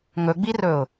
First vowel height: mid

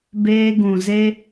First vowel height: mid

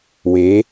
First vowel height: mid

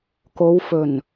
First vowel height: mid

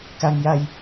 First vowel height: low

